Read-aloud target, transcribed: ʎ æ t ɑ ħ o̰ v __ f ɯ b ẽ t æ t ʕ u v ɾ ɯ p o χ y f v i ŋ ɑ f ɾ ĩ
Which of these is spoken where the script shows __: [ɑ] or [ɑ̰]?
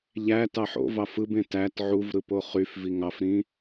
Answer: ɑ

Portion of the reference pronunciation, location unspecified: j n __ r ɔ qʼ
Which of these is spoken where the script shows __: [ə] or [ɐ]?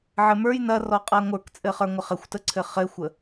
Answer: ɐ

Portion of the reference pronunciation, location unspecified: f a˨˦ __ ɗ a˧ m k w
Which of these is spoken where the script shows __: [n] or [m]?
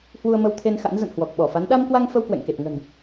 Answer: n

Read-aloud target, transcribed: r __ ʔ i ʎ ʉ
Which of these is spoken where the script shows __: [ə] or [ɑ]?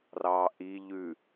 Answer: ɑ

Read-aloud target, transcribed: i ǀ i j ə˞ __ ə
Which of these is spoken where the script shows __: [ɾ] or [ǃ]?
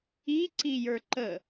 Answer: ǃ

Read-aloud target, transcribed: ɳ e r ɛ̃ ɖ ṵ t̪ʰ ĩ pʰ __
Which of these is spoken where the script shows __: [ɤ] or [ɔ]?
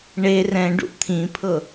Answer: ɤ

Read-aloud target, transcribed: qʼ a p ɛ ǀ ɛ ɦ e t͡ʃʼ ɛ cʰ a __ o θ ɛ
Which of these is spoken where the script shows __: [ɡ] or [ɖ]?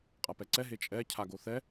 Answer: ɡ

